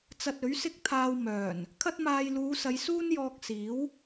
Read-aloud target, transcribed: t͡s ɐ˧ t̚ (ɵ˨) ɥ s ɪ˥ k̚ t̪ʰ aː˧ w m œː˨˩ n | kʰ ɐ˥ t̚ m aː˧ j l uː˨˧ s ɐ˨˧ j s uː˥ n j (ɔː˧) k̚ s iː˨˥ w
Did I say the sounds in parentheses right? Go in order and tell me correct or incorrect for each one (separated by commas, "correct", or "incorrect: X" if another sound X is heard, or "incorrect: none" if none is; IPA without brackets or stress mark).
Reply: incorrect: ɵ˨˥, correct